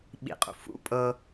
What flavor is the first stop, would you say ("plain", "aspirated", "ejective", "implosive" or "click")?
implosive